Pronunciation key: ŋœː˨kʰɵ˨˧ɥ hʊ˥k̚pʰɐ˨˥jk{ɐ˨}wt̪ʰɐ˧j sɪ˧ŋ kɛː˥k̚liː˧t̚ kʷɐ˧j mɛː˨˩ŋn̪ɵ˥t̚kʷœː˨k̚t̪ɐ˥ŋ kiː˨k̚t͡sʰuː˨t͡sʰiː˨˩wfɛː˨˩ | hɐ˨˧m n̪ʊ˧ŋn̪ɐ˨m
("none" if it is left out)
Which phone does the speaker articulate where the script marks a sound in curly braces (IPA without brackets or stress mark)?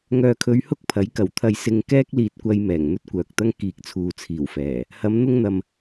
ɐ˨˩